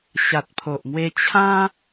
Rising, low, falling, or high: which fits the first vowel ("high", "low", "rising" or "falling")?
low